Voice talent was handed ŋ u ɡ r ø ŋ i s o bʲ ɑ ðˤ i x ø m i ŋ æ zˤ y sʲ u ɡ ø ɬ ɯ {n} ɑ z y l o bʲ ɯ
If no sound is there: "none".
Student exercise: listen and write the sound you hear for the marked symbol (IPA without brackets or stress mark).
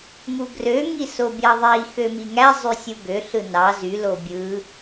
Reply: n